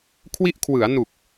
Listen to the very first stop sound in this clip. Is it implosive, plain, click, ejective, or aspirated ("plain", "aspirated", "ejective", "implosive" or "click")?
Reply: aspirated